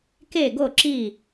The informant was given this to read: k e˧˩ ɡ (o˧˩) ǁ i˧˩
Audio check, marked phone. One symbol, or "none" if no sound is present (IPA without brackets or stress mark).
o˧˩